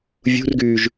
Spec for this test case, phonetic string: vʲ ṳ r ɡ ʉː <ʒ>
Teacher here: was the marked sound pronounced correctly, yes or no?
yes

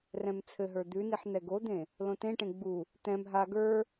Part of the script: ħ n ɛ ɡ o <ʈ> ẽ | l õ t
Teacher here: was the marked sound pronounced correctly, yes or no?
no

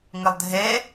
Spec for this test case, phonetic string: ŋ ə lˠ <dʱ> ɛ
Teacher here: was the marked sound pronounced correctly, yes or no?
yes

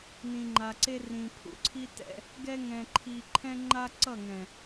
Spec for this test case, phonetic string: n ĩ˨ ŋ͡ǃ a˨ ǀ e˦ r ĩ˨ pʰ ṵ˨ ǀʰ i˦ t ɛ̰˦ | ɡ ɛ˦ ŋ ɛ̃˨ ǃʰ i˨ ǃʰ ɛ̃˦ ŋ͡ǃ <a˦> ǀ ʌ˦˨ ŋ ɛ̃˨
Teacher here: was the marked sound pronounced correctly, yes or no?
yes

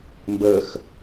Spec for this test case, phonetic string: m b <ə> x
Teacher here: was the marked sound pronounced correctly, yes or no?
yes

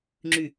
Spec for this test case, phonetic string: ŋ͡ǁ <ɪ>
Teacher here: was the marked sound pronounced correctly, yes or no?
no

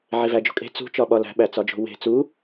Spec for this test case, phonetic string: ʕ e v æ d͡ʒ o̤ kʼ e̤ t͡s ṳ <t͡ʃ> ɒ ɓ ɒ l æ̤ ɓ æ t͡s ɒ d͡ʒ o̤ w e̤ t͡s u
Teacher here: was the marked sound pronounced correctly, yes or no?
yes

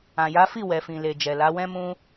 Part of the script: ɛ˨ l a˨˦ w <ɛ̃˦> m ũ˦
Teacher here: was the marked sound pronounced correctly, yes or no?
yes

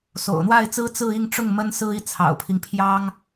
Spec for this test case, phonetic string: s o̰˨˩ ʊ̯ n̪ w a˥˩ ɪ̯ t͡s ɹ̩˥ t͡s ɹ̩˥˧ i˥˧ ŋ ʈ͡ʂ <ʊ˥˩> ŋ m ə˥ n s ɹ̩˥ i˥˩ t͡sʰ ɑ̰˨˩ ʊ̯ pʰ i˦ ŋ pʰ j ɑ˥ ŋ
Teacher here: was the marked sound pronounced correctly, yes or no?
yes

